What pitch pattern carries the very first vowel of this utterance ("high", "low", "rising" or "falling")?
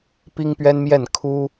high